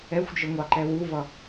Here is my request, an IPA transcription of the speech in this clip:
ɛ xʷ d͡ʒ ə ŋʷ ɑ ǃ ɛ w u v ʌ

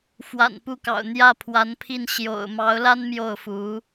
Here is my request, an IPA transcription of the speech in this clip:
f w a̰˨˩ n p u˥˩ k ɑ̰˨˩ ʊ̯ n̪ j ä˥˩ pʰ w a˧˥ n pʰ i˥˩ n ɕ j o̰˨˩ ʊ̯ m ɑ˧˥ ʊ̯ l a˥ n m j o˥˩ ʊ̯ f u˧˥

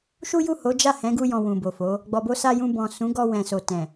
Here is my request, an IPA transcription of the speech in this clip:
ʃ u˦ j u˦˨ h o˨˦ d͡ʒ a˦˨ h ɛ̃˨˦ ɡ u˧ j ɔ̃˨ w ũ˨ b o˨ f o˨˦ | ɡ͡b ɔ˨ b o˧ s a˧ j ũ˧ b ɔ̃˨ s ũ˨˦ ɡ ɔ˧ w ɛ̃˨ s o˨ t ɛ̃˨

